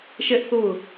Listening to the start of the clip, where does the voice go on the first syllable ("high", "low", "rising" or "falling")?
high